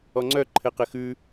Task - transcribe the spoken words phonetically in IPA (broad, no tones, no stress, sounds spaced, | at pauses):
ɔ ŋ͡ǀ œ ǃʰ ɘ q ɘ x ʉ